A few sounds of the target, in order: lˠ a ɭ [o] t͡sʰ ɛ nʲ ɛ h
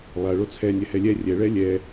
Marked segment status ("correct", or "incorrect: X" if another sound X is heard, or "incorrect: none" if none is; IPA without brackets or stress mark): correct